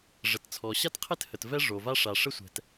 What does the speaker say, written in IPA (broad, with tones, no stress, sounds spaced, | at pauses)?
ʐ ə˩ t t͡sʰ ɔ˩ ɕ a˥ t qʰ ɪ˥ t h ə˩ t v ɛ˥ ʐ o˩ v a˥ ʂ a˩ ʂ ə˥ sʷ ɛ̤˩ t